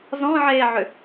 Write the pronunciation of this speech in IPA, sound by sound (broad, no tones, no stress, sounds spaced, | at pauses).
z ɔ̃ ʕ eː ʕ ʏ